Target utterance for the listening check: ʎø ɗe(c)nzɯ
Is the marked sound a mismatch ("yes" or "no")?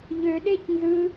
no